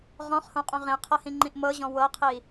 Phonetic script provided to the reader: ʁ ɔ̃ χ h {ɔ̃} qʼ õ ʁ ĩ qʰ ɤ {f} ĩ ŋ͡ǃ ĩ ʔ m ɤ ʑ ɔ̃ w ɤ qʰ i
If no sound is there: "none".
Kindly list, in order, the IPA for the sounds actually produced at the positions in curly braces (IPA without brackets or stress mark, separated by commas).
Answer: õ, h